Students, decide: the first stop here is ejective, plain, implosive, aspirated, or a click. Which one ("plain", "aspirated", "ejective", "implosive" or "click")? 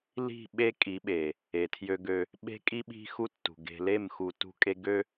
implosive